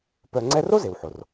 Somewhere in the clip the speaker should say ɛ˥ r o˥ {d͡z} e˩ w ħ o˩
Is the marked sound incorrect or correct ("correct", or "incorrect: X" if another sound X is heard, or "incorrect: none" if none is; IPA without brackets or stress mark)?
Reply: incorrect: z